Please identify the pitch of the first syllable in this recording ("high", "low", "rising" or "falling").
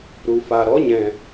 low